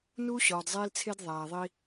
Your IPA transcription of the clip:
n uː˦ ɕ ɒː˨ d zˤ eː˦ l t͡sʰ e˦ d ðˤ æː˨ ðˤ i˦

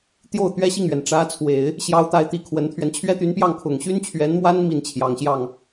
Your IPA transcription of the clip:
t̪ j o˥˩ ʊ̯ t̪ ɥ ɛ˥ ɕ i˥˩ ŋ ɥ ɛ˩ n ʈ͡ʂ ä˧˥ t͡sʰ w e˨˩˦ ɪ̯ | ɕ j ɑ˧˥ ʊ̯ t̪ a˧˥ ɪ̯ t̪ i˨˩ kʰ w ə˧˥ n t̪ʰ ɥ ɛ˧ n t͡ɕʰ ɥ ɛ˥ t̪ y˧˥ n p j ɑ˥˩ ŋ kʰ ʊ˨˩ ŋ ɕ y˥ n t͡ɕʰ ɥ ɛ˧˥ n m w a˥ n m i˥˩ n t͡ɕʰ j ɑ˨˩ ŋ ɕ j ɑ˥˩ ŋ

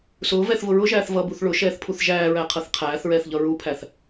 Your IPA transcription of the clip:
s ʊː v ɛ θ v ʊ ɹ ʊ ʒ æː θ v ʌ b u θ ɭ ʊ ʃ ɛː θ pʰ u θ ʒ æː ɹ æ qʰ ʌ θ qʰ æː θ ɹ ɛː θ ʎ ʌ ɹ u pʰ æ θ

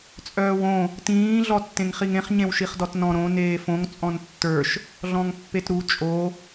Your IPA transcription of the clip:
t͡sʼ œː w õ | t ĩː ɮ ɔ tː ẽ ŋ χ i ŋ ẽ χ ɲ ẽ w ʃ i χ d ɔ t n ɔ̃ ɾ õ n eː f õ ŋ t͡sʼ ɔ̃ n tː ə˞ ʃ | ɮ ɔ̃ ŋ pː e t ɾ u t͡ʃʼ o

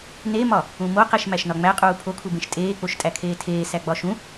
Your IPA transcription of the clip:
n e m ɒ | ũ m o q e ʃ m æ ʃ n ɒ ŋ͡m æ qʼ uː pʰ o kʰ u b ẽ ʃ tʼ eː k͡p o ʃ tʼ æ kʰ eː tʰ eː s æ ɡ͡b ɒ ʃ ũ

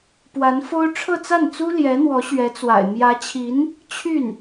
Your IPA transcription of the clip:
p w a˧˥ n f o˥ ʊ̯ ʈ͡ʂʰ ɤ˥˧ t͡s a˥˩ n t͡s u˥ l j ɛ˧˥ n̪ w ɔ˧˥ ɕ ɥ ɛ˧˥ t͡s w a̰˨˩ ɪ̯ m j ä˧˥ t͡ɕʰ i˧˥ n | t͡ɕʰ y˥˩ n

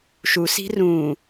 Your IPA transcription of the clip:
ʃ u s i̤ r ũ

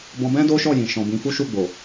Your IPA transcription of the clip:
b ɔ̃˧ b ɛ̃˦ d o˦ ʃ ɔ˦˨ j ĩ˨ ʃ ɔ̃˨ b ĩ˨˦ f u˦ ʃ u˦˨ ɡ͡b o˨

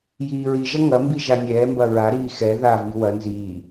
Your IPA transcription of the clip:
j iː ɹ i ʒ ɐ ŋ ɐ m b i ʒ a nʲ ɛː m b ɐ ɹ a ɾ iː x ɛ ð a v i w ɐ n z iː

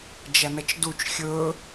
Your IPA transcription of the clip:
d͡ʒ ɐ n ɐ t͡ʃ d u t͡ʃ xʲ ɵ

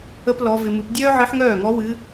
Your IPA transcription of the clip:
ə˥ p l ɔ˧˥ v ɪ˧ m ɨ˧˥ p dʲ œː˥ ʕ ɨ˧˥ ħ ŋ œː˥˩ ŋ ɔ˧˥ w ɨ˧˥

